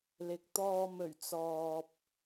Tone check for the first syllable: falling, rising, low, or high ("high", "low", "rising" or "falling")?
rising